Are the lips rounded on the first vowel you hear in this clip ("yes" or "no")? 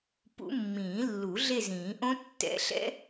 yes